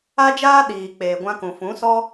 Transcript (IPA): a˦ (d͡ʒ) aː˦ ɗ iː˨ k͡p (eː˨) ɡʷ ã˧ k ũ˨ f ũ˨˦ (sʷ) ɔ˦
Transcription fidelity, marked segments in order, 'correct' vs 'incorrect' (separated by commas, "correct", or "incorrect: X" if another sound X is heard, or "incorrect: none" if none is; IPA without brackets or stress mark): correct, correct, incorrect: s